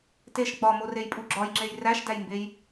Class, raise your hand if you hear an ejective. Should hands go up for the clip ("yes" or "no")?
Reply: yes